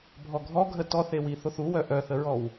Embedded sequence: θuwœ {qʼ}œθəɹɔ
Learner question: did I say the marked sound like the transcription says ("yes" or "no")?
no